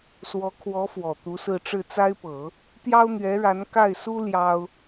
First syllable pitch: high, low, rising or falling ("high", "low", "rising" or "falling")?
rising